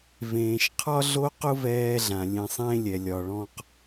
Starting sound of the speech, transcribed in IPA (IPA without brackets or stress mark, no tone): v